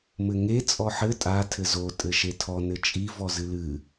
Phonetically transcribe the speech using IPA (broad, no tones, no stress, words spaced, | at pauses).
mɘŋe t͡sʼɔħɘ tʼa tʰɘzo tʼɘʃetʰɔ nɘt͡ʃʼi vɔzɨlɨ